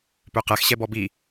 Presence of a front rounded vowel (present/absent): present